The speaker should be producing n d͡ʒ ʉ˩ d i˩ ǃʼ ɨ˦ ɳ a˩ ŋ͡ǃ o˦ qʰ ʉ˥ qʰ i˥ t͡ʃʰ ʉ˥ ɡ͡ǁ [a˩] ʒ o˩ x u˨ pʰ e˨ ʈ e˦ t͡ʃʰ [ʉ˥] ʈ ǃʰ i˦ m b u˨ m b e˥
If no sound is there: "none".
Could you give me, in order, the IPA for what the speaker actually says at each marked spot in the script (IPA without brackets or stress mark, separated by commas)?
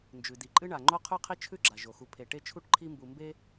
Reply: a˩, u˥